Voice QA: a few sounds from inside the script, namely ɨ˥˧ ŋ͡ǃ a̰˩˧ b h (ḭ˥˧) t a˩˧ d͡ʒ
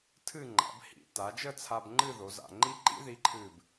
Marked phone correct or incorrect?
incorrect